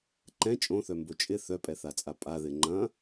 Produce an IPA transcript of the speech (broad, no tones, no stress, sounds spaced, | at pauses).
ǃ ɛ̃ t͡ʃʼ õ θ œ m b o t͡ʃʼ ɪ θ œ pʼ ɛ θ a t͡sʼ a pʼ a ð ɪ ŋ͡ǃ ɐ̃